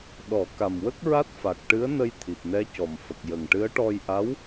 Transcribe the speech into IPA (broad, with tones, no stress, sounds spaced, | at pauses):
ɗ ɔ˨˩˦ k a˨˩ m w ə˦˥ k̚ ɹ a˦˥ t̚ f a˨˩ k̚ ʈ ɨ˧˥ ə̯ n ə˧ j t̪ʰ i˨˩ p̚ n ɛ˧˥ c ɔ˨˩ m f ə˨˩ k̚ j ə˨˩ ŋ ʈ ɨ˧˥ ə̯ ʈ ɔ˧ j ʔ a˧˥ w